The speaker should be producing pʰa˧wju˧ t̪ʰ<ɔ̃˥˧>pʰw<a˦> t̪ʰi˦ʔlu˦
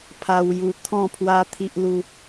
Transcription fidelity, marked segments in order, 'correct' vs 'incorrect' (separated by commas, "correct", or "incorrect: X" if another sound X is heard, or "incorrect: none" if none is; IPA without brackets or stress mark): correct, correct